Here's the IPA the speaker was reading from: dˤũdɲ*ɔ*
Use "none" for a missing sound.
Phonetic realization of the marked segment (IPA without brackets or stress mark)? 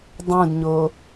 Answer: o